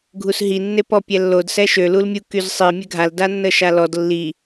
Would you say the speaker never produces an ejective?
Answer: yes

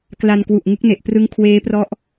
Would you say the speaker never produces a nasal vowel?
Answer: yes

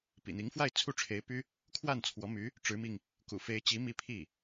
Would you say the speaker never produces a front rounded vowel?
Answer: no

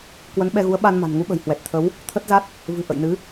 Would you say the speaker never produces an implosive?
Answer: no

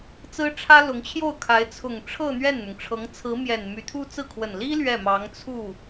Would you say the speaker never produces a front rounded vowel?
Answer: no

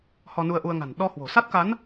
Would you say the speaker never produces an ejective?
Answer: yes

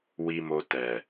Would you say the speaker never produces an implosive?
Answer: yes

